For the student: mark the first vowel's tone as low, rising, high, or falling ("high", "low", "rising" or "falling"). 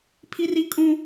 high